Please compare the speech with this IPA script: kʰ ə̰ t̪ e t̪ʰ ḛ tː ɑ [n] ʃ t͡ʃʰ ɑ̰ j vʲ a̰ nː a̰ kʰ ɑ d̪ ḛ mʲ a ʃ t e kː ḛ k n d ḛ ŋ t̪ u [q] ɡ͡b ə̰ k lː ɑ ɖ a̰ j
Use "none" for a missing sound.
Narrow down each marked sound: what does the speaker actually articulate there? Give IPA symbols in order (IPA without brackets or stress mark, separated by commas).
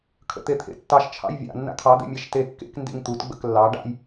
none, t